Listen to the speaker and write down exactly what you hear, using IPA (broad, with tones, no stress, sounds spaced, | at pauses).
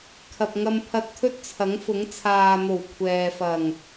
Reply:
kʰ ɐ˨ p̚ ŋ ɐ˧ m pʰ ɐ˧ t̚ t̪ʰ ɵ˥ t̚ t͡sʰ ɐ˨˥ ŋ f ʊ˨˥ ŋ t͡sʰ aː˨ n̪ o˨˩ w kʷʰ ɛː˨ f ɐ˨˩ ŋ